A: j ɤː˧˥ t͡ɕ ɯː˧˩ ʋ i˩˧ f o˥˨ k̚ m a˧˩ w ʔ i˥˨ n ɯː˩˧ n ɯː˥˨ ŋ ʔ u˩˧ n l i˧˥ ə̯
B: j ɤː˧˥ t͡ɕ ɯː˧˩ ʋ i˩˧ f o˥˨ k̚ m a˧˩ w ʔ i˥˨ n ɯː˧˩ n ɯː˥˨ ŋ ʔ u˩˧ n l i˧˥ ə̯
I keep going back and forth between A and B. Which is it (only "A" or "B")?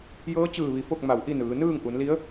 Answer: A